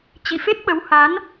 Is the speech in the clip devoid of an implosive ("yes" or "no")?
no